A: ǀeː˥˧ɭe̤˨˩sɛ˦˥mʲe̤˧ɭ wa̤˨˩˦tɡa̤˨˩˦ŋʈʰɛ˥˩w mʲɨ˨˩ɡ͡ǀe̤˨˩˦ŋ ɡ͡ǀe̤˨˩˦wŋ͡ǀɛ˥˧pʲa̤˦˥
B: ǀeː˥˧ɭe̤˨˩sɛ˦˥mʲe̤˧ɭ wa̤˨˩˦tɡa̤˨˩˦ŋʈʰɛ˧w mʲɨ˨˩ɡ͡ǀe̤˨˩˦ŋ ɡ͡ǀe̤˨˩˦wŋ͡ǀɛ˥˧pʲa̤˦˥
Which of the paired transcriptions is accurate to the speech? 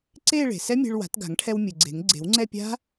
B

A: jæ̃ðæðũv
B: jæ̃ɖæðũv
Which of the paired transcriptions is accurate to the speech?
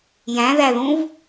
A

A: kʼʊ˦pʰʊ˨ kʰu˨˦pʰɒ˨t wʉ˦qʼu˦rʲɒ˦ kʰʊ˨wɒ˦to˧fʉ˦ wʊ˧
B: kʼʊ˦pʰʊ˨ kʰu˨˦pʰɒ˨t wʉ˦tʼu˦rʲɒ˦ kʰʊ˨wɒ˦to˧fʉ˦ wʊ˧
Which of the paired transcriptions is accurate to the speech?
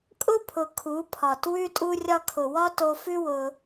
B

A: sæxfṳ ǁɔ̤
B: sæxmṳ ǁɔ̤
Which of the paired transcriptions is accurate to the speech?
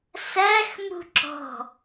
B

